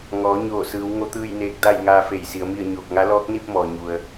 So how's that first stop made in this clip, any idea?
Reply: plain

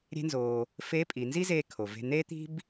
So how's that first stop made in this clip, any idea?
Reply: ejective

